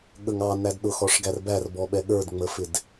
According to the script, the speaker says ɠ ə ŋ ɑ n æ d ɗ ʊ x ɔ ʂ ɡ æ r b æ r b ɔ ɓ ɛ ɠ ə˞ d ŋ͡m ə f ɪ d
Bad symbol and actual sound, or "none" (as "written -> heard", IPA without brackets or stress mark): none